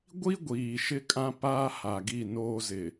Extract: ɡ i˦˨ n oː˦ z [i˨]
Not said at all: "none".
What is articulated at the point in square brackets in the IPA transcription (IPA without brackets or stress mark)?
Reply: ɪ˨